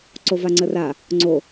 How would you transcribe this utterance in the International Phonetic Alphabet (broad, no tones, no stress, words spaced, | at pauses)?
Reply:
ǀovaŋ͡ǀəra | ŋ͡ǀo